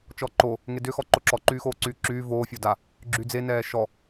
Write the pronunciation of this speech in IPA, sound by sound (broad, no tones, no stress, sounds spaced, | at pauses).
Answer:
t͡ʃ ɔ ǃ o | ŋ e d ʏ x ɔ ǃ o ǁ ɔ ǃ yː x oː ǀ yː ǁ yː v oː fʲ o d a | ɡ͡ǁ y d͡z e n ɛː ʃ ɔ